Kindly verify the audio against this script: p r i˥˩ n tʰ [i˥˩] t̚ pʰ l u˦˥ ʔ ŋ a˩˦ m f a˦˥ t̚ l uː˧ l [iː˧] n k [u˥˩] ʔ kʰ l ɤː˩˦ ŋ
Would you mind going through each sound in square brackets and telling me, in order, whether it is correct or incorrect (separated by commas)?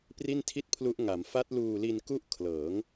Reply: correct, incorrect, correct